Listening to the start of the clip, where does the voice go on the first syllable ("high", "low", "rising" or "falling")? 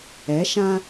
rising